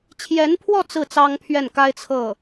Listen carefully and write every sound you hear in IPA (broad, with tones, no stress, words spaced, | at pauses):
t͡ɕʰjɛ˧˥npʰwɔ˥˧ t͡sɹ̩˥˩ t͡sɑ˥ŋpʰɥɛ˥˩nka˥ɪ̯ t͡sʰɤ˥˩